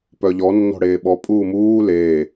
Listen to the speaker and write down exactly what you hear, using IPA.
p œ ʎ ɔ nː ɔ̤ ɽ eː ɓ ɔ pʼ uː m uː l eː

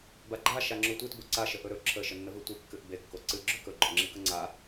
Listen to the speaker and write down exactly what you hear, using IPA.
b a ɡ͡ǃ a ʃ a ŋ͡ǁ o tʷ i t b o ǀ a ʃ ə ʔ ɵ ɾ ɵ ǁʰ ə ʃ ə nː ə v ɨ tʷ i kː ɨ ʔ b e kː o ǀ ɨ ɡ͡ǁ ɵ k ɵ ɡ͡ǃ ɵ ŋ͡ǁ i k ə ŋ͡ǀ a

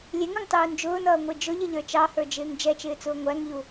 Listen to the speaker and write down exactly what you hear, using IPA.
lʲ ɛ ŋ u ŋ tˤ uː n d͡ʒ ʊː n ʌː ŋʷ ɪː d͡ʒ ʊ ʎ ɪ ʎ ə˞ t͡ʃ ɑ h ə˞ d͡ʒ ɪː ŋ d͡ʒ ɛ t͡ʃ ɪː t͡s ʊː ŋʷ æ ŋ ʎ u

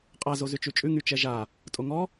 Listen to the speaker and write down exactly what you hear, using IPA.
qʼ a z o z ʉ t͡ʃ ʉ t͡ʃʼ ʉ ŋ y t͡ʃ ɛ ʒ a | tʼ o ŋ ɔ

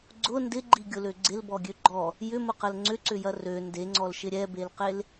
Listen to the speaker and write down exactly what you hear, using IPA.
ɡ͡ǀ ʊ n d ɪ ɡ͡ǃ i ɡʲ ʊ l ø ɡ͡ǀ ɪ l b ɔ ɡʲ ø ɡ͡ǃ ɔ | j ʏ m ʊ q ɐ l ŋ͡ǀ ʏ ǀ ʏ j ɐ r ø n d e ŋ͡ǀ ɔ l ʃ ɪ ɾʲ ɛ b e l q e l

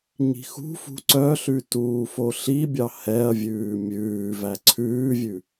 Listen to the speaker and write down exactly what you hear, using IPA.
ɲ i̤ x ṳ f ṳ ǀ œ ɬ ʉ t uː f o ɬ i bʲ ɑ h ɛ ɐ̯ vʲ ʉː mʲ ʉː v æ ǀʰ ʉː vʲ ʉ

